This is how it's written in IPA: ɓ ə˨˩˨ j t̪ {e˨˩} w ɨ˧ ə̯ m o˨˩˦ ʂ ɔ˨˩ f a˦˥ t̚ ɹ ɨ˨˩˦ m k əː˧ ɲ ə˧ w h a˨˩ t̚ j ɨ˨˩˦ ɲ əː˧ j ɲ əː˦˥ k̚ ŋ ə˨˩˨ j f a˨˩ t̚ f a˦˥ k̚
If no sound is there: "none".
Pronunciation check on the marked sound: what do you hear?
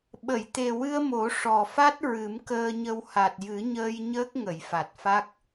e˨˩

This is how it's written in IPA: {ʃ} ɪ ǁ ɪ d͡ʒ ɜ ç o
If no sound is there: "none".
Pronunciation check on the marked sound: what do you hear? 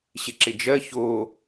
ɕ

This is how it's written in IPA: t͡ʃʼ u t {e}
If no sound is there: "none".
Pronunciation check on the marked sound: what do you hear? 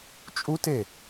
e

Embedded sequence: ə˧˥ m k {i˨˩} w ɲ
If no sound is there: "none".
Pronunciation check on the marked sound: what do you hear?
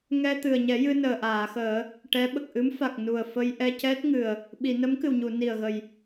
ɨ˨˩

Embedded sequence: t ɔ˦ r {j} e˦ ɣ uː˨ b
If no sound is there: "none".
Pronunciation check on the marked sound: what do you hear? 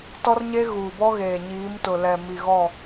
ɲ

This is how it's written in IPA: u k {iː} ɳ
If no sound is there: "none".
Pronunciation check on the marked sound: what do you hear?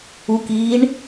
iː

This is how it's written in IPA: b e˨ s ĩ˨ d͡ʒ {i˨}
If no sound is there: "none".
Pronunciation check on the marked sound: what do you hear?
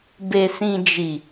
i˨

